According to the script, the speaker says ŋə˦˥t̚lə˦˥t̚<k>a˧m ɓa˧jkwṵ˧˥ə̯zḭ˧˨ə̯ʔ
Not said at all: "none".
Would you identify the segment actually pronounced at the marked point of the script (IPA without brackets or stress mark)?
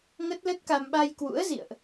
k